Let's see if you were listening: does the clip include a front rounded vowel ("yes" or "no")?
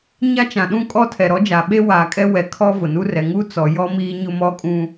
no